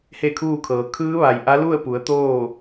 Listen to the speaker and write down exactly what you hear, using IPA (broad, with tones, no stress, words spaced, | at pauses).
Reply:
he˥˨kʰuː˥˨kʰɤː˩˧ kʰɯː˧˥ʋa˩j ʔa˧˥lu˥˨ə̯pu˩˧ə̯ t̪oː˥˨